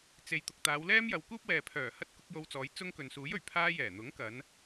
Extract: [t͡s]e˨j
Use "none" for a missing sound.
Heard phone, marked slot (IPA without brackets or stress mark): t͡s